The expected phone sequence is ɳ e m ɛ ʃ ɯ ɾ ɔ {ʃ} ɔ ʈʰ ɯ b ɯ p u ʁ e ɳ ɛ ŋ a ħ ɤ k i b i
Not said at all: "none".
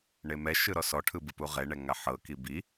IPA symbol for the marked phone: s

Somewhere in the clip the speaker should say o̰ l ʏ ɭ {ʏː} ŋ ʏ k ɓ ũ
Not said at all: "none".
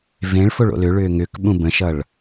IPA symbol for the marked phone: ʏː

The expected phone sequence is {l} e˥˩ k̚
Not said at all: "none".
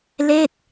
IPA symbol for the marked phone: l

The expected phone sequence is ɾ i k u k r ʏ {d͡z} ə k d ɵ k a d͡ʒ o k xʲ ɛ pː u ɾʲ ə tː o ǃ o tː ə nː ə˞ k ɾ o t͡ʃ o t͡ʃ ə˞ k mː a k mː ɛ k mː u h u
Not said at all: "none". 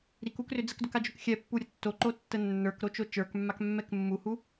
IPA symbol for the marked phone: d͡z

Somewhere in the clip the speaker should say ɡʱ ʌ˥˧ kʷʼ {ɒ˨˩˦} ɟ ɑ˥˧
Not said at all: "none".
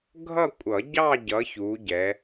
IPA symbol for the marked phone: ʌ˨˩˦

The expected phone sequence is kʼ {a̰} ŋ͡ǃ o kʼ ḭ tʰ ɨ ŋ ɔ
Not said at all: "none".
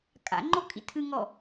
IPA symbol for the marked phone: a̰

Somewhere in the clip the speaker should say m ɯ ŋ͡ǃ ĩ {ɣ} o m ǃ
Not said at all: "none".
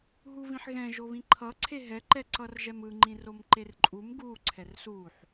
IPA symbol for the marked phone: r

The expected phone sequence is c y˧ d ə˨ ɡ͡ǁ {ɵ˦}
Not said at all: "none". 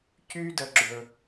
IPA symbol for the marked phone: ɵ˨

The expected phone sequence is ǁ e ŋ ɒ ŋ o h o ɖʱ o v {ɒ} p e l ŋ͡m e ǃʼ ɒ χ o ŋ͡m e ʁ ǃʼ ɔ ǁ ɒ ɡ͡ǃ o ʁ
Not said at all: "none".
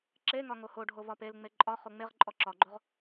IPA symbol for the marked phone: ɒ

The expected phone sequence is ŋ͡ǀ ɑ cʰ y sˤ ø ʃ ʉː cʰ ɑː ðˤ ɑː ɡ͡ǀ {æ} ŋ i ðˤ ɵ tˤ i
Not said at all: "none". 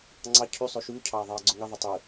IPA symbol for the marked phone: œ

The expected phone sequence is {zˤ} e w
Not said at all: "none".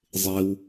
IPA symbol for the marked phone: zˤ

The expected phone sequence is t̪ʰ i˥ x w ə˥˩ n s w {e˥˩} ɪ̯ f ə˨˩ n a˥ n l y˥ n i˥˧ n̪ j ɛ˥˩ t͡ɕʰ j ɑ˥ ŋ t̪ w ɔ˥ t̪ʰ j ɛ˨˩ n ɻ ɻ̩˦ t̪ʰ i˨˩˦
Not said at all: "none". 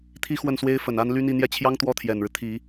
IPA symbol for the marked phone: e˥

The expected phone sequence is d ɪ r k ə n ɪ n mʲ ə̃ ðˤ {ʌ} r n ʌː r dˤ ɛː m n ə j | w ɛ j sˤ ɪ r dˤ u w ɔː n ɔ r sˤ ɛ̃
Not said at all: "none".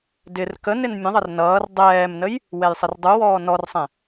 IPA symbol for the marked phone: ʌ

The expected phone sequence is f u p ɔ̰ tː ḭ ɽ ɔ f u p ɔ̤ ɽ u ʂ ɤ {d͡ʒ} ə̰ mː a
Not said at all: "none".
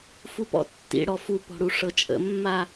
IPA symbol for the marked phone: t͡ʃʼ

